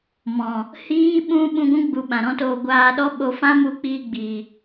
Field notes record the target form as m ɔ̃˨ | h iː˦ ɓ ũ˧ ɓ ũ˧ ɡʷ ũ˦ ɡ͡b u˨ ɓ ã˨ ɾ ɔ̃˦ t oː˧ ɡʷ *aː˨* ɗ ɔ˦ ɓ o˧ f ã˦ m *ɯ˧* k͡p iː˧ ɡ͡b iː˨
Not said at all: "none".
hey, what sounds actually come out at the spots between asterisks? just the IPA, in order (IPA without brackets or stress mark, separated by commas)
aː˧, u˧